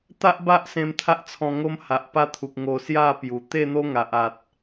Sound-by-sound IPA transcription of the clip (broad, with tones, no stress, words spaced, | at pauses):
t̪a˦ʔba˦ʔ sẽ˧mt̪ʰa˦ʔt͡sʰɔ̃˧ ŋo˦mha˨ʔpa˦t̪ʰu˨k̚ ŋo˧sja˥˧pju˨˩ t̪e˥˧n̪o˦ŋa˨ʔ a˨t̚